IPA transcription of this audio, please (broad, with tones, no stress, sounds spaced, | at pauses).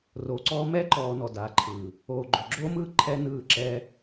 r oː˨ ǀ ɔː˦ m ɛ˦ ǃ ɔː˧ n ɔ˨ d a˨˦ ǃʰ ɯː˨ | oː˨ ɡ͡ǃ o˨ ɡ͡ǁ oː˦ m ɯː˦ ǃʰ ɛ˦ n ɯː˦˨ ǁ ɛ˦